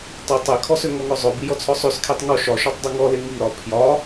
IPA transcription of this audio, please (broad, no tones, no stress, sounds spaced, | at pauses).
tˤ i tˤ e kʰ ɔ s ø ŋ ɔ ŋ ɔ zˤ ø b i j ɔ t͡sʰ ɔ sˤ ø s kʰ e tˤ ŋ ɔ ʃ ɒ ʃ ɔ tˤ dˤ e ŋ ɔ l e ŋ i ɾ ɒ pʰ j ɒ